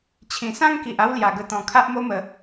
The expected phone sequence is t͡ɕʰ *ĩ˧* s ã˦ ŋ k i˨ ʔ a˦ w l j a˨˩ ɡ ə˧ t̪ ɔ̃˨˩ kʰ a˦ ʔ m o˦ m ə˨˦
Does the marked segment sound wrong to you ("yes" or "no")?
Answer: yes